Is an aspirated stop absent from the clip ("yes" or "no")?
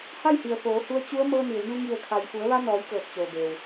no